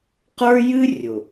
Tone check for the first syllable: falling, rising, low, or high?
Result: high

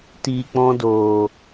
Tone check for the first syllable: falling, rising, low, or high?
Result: low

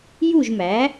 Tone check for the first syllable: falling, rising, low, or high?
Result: falling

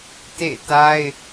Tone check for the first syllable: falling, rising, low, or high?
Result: falling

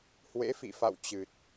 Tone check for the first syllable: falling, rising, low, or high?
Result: rising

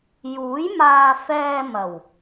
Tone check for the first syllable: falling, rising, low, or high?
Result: rising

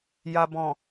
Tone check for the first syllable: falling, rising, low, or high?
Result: low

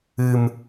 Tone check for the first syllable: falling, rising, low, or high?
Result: high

